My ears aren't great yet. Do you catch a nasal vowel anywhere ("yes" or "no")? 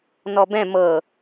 yes